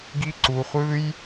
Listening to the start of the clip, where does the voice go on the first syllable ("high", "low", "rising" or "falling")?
high